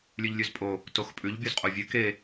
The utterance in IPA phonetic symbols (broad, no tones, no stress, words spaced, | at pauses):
lʲʉʎlʲʉzpʼo | toxpʼʉʎ bʲozqʼovʲʉ ke